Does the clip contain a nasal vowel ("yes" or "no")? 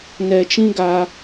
yes